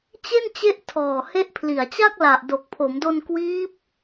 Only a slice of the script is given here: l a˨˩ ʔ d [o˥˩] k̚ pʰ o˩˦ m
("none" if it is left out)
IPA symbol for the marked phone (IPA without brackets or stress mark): o˨˩